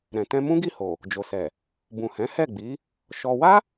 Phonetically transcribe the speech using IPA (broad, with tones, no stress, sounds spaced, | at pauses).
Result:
ɾ ɛ̃˨ t ɛ̃˧ m ũ˦ ɡ i˦˨ h o˨ | d͡ʒ o˨ s ɛ˨ | b ũ˨ h ɛ̃˨˦ h ɛ˦˨ ɡ͡b i˨˦ | ʃ ɔ˧ w a˦